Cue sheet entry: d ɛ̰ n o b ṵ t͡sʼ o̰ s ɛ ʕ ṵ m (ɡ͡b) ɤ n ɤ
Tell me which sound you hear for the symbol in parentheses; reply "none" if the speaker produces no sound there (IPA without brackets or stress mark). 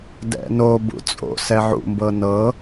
b